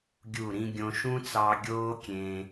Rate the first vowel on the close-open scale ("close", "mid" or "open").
close